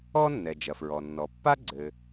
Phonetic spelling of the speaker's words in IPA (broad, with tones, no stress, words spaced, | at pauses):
ɔ˥nːɛ˩ d͡ʒɐ˩fɹɔ˩ nːɔ˩pːa˥ ɡ͡ǀɘ˩